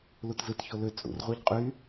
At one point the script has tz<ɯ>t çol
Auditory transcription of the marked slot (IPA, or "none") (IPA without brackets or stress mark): ɯ